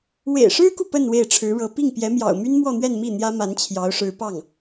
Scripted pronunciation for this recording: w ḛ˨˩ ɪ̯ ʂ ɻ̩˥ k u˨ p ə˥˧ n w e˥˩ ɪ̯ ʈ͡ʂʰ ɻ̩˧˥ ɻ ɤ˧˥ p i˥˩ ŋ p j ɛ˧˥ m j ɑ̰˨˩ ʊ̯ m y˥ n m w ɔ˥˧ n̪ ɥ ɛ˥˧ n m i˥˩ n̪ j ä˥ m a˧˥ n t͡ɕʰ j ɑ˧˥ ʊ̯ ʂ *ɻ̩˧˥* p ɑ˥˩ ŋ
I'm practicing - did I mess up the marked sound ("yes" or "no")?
no